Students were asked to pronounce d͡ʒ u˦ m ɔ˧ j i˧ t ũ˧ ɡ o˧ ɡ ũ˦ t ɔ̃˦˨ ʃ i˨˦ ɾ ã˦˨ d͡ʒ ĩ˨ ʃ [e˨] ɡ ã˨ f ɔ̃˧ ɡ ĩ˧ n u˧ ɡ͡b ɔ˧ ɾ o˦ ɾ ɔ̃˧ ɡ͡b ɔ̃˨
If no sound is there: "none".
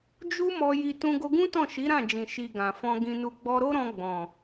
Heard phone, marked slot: i˨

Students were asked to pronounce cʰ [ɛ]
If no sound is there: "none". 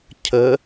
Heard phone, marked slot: ə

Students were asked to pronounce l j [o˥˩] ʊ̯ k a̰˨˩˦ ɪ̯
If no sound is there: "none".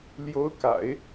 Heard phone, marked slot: o˧˥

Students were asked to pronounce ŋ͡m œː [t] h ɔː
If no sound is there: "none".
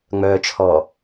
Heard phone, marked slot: t͡ʃ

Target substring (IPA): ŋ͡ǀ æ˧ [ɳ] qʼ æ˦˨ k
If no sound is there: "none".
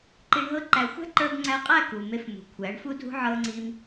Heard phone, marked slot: none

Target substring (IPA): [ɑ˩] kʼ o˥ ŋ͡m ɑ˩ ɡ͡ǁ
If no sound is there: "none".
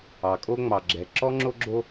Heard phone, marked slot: ɑ˩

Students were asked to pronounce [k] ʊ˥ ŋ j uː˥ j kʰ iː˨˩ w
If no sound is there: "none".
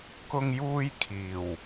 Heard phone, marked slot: k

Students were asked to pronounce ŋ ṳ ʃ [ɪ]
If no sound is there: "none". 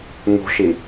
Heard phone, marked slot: i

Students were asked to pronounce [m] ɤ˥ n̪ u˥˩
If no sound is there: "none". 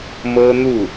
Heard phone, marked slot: m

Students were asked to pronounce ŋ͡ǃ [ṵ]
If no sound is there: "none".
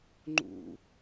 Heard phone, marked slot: ṵ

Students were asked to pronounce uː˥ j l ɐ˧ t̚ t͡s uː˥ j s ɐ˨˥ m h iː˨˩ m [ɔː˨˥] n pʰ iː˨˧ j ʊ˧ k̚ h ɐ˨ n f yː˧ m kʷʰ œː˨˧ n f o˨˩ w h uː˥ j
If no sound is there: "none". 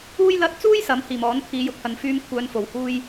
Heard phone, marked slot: ɔː˨˥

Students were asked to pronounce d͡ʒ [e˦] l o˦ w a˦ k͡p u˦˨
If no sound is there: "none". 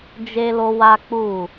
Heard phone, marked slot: e˦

